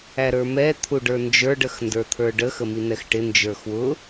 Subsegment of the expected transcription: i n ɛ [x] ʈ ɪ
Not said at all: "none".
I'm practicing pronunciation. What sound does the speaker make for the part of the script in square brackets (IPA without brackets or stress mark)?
x